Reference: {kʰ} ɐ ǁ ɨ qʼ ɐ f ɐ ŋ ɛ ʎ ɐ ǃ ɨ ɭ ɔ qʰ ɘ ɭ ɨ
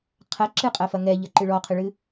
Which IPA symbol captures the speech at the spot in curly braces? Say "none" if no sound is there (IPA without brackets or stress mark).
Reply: qʰ